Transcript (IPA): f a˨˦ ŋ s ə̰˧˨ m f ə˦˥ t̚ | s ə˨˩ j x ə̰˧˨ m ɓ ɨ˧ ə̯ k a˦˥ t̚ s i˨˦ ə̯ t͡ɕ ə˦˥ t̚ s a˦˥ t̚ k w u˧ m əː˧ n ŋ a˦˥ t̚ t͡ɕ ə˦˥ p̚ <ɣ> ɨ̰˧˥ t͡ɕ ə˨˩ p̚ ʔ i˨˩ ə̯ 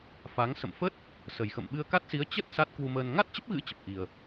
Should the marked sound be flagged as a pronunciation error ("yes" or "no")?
no